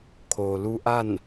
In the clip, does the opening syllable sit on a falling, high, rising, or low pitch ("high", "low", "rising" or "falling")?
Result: low